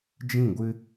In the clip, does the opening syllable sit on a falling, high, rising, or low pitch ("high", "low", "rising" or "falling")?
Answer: falling